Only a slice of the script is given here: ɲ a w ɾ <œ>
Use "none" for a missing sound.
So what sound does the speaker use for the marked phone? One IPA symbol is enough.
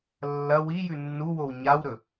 ɵ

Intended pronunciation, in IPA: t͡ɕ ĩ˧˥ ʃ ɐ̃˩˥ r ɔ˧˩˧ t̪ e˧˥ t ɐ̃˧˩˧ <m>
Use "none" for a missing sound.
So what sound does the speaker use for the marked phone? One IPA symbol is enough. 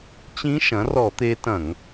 ŋ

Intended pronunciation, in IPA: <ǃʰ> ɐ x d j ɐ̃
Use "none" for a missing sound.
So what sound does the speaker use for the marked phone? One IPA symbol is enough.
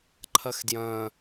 ǃʰ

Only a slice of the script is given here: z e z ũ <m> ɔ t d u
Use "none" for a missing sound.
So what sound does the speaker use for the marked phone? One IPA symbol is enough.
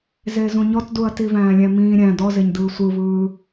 ɲ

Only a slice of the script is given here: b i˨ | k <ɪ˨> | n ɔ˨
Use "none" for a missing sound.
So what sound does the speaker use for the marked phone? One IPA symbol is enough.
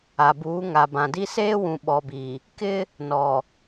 ɪ˦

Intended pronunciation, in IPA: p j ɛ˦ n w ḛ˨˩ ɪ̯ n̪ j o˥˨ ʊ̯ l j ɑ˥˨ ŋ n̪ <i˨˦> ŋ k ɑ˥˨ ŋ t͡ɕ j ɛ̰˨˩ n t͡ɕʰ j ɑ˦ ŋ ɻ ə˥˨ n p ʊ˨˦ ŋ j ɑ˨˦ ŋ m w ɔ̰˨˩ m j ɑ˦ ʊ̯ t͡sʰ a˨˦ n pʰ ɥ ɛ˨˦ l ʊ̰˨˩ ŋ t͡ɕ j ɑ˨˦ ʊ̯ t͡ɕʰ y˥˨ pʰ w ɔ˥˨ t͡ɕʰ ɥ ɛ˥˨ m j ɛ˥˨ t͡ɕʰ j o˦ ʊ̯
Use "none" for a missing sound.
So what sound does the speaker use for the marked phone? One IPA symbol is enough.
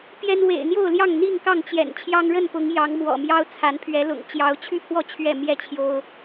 i˥˨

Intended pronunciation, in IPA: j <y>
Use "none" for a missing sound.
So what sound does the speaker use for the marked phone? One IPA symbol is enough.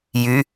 y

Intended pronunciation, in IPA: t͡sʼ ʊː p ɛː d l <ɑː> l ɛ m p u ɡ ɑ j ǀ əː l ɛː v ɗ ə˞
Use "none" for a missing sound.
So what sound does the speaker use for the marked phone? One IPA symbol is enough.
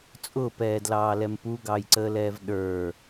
ɑː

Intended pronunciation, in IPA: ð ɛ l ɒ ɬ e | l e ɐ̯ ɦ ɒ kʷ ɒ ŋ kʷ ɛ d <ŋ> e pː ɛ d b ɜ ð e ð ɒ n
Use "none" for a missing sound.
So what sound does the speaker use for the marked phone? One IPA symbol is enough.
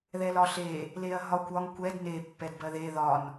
n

